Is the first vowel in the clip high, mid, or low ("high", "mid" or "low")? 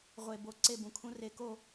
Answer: mid